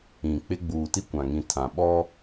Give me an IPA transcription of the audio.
ĩ˨ k͡p ɪ˦ ɡ͡b uː˨ t i˦ kʷ ã˨ ŋ ĩ˨ tʰ ã˨ ɓ ɔ˦

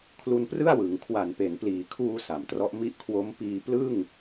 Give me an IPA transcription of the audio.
kʰ l u˧ n p r ɯ˥˩ a̯ w ɯ˩˦ ŋ kʰ w a˨˩ n p e˩˦ n p l iː˩˦ kʰ uː˧ s a˩˦ m t r ɔ˦˥ ʔ m i˦˥ ʔ kʰ w o˦˥ m p iː˧ p l ɯ˥˩ ŋ

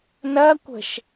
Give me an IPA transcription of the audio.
n ɐ kʷ ə̤ ʃ

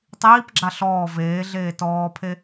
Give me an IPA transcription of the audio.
tˤ iː p ɡ͡ǁ a ɬ ɔː v eː ɮ eː t ɔː pʰ e

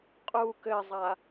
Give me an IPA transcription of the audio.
qʼ u k ɘ zˤ a

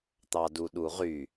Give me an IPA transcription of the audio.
t̪ ɑ d u ɗ u ʁ y

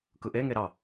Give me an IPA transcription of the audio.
k ɯ ʔ e ŋ e ɾ ɑ

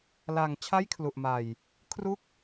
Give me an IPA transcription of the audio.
l a˨˩ ŋ t͡ɕʰ a˥˩ j kʰ l u˨˩ ʔ m a˨˩ j | kʰ r u˥˩ k̚

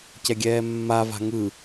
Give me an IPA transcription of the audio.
c ɛ ɡʲ ɛː mː a v a̤ ŋ ɯ

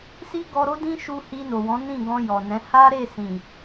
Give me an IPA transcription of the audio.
s i˦ ɡ ɔ˧ ɾ o˦ d ĩ˦ ʃ u˧ h i˧ n o˨ w ɔ̃˨˦ n ĩ˦˨ ɡ ɔ̃˧ j ɔ˨ n ɛ̃˨˦ h a˦ ɾ e˦˨ s ĩ˨

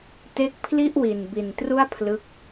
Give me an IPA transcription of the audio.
t e˦˥ k̚ pʰ l i˥˩ ʔ w i˨˩ n b i˨˩ n t r u˥˩ a̯ pʰ l ɯ˦˥ k̚

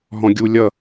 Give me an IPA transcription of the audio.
ɦ ɔ̃ ɡʲ u lʲ ʌ

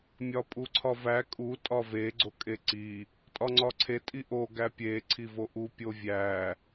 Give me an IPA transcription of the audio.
mʲ ɒ pʼ u ǀʰ ɒ v æ kʼ u tʼ ɒ v e ɡ͡ǀ o kʼ e ǀ i | tʼ ɒ ŋ͡ǀ ɒ ǀʰ e tʼ i ʔ o ɡ æ pʲ e ǀʰ i v o ʔ u pʲ o vʲ æ

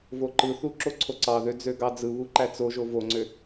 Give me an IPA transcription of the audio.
v o ǃ ɯ θ u ǁ o ǀʰ o ǀ ɑ ð ø d͡z ø ɡ ɑ d͡z ɯ β u ǃ æ t͡s o ʒ o v o ŋ͡ǀ ø

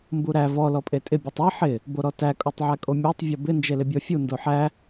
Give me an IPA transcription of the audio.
m b u ɾ æ v ɔ l ɔ pʼ e tʼ ɪ bʲ u tˤ æ ħ ɪ | b o ɾ ɔ t æ kʼ o tˤ ʕ æ kʼ o mʲ æ tˤ vʲ o b ɪ n d͡ʒ e l ɪ bʲ ɔ fʲ u n d o ħ æ

